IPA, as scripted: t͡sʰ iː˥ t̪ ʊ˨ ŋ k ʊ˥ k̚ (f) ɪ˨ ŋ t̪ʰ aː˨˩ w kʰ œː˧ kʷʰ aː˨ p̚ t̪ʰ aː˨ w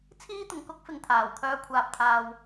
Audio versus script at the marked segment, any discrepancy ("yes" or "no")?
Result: no